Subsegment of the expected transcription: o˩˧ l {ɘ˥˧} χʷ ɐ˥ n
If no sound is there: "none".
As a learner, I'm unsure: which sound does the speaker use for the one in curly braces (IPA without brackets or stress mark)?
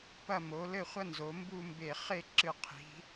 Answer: ɘ˥˧